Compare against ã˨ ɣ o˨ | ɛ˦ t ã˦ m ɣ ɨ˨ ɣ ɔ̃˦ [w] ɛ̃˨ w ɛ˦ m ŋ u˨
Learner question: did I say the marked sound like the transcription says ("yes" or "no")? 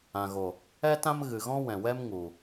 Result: yes